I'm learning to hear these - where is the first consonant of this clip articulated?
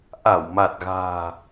throat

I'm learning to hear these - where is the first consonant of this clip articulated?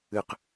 uvula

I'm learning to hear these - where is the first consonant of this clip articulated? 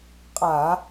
uvula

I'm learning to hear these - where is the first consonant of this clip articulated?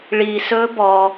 retroflex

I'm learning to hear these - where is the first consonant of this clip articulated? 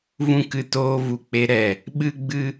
lips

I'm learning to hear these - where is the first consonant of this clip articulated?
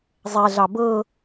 tongue tip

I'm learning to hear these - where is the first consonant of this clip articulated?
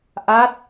throat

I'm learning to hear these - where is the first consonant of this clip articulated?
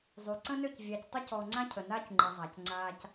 tongue tip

